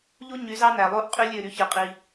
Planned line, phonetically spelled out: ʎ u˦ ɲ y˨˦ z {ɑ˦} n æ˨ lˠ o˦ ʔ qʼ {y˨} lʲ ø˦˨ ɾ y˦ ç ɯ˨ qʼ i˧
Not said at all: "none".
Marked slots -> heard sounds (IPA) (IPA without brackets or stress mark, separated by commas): ɑ˦, y˦